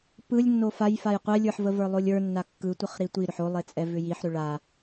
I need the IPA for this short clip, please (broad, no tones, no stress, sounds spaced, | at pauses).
p ɯ lʲ nː o f a j f a j qʷ ɛ lʲ ə˞ ħ v ə v ə˞ lˠ o lʲ ə˞ nː a kː ɯ tʷ ə χ ɾ i tʷ i ɾ ʏ ħ o lˠ e t͡sʼ ɛ v ʏ j i ħ ɾ ʏ ɭ a